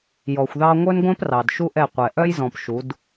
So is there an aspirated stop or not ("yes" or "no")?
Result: no